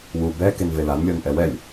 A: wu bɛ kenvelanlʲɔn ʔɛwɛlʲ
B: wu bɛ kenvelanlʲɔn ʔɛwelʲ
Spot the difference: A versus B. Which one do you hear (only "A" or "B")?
A